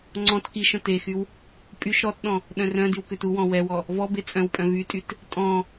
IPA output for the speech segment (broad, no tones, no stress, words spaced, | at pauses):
ŋ͡ǀɔ̃t kiʃ œ̃texyw | pʼyʃ ɾɔtɗɔ̃ | ɗœ̃rœ̃dyw køtuwɔ̃ wɛwɔ | vɔbe t͡sʼœ̃wpʼœ̃ vytʼyt | tʼɔ̃